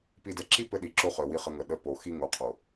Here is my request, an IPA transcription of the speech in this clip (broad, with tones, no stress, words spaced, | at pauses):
pi˨dɛ˨ǁi˦ pɘ˦ɗi˨ǁo˦χœ˨ wi˦χə˦ ŋə˨ ɗə˦po˨ xi˦ŋo˨ qʰo˨